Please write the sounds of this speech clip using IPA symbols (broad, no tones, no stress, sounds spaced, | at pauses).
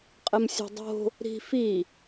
qʼ ɘ m sʲ ṳ dˤ o̤ | ɾ i̤ f i